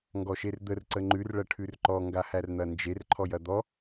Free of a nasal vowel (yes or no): yes